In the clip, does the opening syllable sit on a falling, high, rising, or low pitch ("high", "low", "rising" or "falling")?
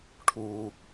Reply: low